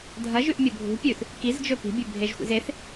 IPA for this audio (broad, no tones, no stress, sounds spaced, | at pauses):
dʱ ɐ ʒ ʉ ʔ mʲ ɵ bʱ ṳ pʲ ʉ θ | k i z d͡ʒ ɵ p i̤ bʲ ʉ bʱ e ʒ xʷ ḭ z e θ